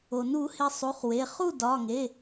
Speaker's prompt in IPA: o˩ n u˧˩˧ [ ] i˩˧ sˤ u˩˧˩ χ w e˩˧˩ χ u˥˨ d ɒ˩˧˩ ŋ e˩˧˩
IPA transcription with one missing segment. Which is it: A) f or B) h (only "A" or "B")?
B